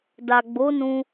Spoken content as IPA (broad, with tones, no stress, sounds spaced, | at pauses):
d a˨ ɡ͡b o˨˦ n ũ˧